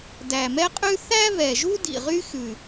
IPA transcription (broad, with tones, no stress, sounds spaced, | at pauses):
d æ˨˩ m ɛ˥ qʼ ʉ˥ θ æ˥ β ɛ˨˩ ʒ u˥ d ḭ˨˩ ʁ y˥ x ʉ˨˩